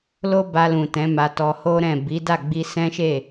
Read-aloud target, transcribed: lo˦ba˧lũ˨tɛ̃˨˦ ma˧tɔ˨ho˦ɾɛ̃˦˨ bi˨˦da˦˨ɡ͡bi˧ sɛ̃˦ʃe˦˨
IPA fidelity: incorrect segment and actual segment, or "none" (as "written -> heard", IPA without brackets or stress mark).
ɔ˨ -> ɔ˧